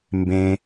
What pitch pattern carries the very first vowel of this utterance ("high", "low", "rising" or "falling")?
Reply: high